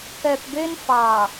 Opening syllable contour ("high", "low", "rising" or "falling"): low